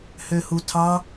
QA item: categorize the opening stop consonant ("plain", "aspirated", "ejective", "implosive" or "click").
aspirated